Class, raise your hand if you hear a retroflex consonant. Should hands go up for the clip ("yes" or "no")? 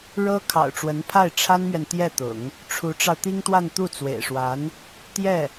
yes